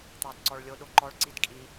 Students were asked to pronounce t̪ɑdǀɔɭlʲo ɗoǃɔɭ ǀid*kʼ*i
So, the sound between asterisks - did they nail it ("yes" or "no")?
yes